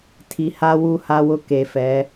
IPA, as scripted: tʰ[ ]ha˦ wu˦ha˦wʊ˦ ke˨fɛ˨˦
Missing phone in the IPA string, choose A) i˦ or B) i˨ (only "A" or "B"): B